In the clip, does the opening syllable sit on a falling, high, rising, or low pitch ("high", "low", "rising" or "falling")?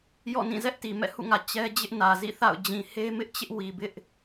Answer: falling